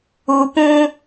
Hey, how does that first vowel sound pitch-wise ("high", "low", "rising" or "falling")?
low